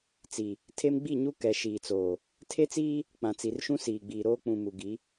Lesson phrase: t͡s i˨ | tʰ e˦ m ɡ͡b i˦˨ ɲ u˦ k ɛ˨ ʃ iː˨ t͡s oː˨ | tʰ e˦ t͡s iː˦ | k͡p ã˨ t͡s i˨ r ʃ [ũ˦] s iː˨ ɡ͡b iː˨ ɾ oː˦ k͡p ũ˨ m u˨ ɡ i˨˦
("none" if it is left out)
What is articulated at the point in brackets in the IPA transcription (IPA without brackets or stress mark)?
ũ˦